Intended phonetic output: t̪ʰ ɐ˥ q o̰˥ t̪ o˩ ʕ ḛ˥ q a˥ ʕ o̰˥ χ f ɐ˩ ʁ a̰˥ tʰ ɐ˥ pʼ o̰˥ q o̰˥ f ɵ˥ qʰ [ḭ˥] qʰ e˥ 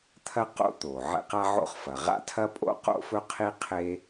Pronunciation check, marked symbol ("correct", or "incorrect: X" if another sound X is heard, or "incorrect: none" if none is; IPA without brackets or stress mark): incorrect: i˥